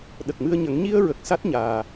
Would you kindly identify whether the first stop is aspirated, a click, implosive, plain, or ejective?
implosive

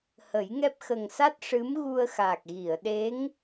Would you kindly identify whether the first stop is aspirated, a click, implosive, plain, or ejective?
plain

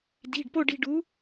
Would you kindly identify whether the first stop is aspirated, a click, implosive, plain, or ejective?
plain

